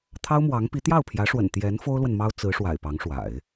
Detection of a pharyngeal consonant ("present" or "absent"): absent